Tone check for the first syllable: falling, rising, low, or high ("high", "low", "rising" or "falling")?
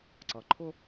low